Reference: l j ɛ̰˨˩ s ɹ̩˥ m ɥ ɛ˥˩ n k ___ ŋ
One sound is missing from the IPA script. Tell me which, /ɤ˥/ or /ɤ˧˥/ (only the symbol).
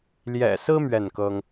ɤ˥